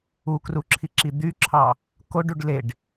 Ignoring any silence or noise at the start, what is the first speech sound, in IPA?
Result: u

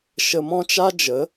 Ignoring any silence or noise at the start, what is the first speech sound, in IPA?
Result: ʃ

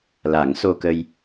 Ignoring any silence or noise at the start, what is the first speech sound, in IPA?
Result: l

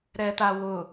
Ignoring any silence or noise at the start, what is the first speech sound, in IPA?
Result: ɾ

